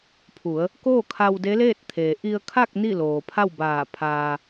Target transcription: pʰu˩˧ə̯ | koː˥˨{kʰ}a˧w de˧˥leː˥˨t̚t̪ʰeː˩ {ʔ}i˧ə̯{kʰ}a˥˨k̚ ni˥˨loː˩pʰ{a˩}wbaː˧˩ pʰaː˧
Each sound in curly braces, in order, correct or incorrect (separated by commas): correct, correct, correct, incorrect